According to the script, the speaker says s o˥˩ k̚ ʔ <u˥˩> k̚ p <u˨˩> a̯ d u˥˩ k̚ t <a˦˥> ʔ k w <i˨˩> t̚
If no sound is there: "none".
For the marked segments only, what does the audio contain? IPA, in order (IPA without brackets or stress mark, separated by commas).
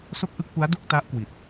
ɯ˥˩, u˦˥, a˦˥, i˨˩